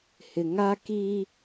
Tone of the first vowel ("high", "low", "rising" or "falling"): low